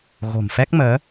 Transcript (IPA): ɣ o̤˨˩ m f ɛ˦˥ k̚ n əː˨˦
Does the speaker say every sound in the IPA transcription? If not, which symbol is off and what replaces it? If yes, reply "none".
n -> m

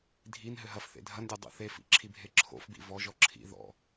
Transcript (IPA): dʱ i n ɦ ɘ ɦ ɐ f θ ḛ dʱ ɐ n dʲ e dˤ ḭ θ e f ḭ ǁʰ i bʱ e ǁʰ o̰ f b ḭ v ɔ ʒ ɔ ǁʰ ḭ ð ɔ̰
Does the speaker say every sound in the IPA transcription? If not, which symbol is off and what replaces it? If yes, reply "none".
none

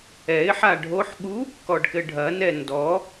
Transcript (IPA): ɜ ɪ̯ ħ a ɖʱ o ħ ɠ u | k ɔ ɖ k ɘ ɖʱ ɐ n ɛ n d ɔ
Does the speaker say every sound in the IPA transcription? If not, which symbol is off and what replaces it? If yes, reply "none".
ɜ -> ɛ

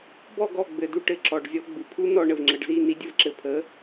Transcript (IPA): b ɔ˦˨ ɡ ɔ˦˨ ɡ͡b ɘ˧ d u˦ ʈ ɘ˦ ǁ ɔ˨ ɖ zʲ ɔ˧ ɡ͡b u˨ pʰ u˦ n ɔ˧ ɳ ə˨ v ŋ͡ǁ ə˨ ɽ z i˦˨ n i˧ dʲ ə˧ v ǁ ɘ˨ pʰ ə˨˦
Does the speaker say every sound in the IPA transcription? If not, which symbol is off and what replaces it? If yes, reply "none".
ɽ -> ɖ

